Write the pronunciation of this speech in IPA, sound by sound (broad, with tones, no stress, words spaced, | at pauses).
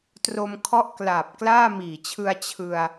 tro˧m kʰɔ˦˥ʔklaː˨˩p̚ klaː˥˩miː˨˩t͡ɕʰɯ˧a̯ t͡ɕʰɯ˧a̯